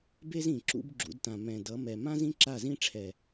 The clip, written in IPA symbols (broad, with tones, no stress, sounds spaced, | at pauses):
b e˦ z ĩ˨ ǁ ṵ˦ b ɡ͡ǁ ṵ˨˦ d t ã˨ m ɛ̃˨ d ʌ˨˦ m ɛ˨ m ã˦ z ĩ˦ ǁ a˦˨ z ĩ˦ ʈ͡ʂʰ ɛ˨